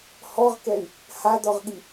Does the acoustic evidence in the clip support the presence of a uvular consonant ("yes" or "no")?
yes